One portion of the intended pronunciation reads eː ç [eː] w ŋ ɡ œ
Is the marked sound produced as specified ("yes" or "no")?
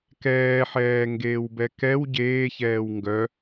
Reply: no